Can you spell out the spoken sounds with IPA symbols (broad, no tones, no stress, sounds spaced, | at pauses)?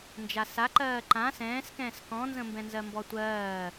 n d͡ʒ a s a ǃ ɜː ǃ ã s ɛ̃ː s k ɛ̃ː s k ɔ̃ n z ə̃ m b ɛ̃ n z ɜ m b ɔ tʷ ɜː